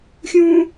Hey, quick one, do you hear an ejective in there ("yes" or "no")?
no